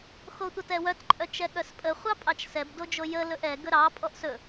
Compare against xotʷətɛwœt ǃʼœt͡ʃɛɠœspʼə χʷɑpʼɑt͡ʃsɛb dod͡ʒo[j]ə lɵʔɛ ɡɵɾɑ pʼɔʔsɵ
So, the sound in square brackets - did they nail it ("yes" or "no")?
yes